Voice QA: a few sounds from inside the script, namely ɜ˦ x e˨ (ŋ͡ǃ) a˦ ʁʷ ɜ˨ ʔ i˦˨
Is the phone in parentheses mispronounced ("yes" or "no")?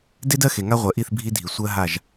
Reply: yes